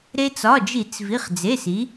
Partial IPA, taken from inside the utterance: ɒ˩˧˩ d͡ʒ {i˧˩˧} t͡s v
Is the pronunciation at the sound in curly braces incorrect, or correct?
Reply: correct